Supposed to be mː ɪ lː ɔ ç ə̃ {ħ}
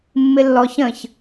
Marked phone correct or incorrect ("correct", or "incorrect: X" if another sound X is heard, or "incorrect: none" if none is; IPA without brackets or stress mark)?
incorrect: ç